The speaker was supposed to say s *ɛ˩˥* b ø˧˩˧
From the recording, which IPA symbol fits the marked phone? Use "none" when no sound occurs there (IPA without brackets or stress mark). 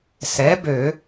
ɛ˩˥